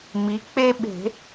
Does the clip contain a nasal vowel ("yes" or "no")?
no